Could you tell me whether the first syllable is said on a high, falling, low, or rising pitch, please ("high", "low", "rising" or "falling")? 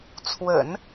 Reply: low